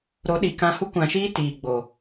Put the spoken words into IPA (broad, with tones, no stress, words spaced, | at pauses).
ɾo˨˦ɗi˨kã˧hu˦ kʷã˧ʃiː˦ tiː˨ɡ͡bo˨